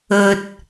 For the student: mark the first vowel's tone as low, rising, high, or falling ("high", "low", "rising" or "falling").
low